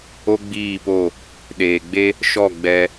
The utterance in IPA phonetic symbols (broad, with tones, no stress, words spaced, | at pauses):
o˦ɡ͡biː˦˨po˦˨ | ɗeː˨ɡ͡be˦ | ʃɔ˦˨ ɡ͡bɛ˧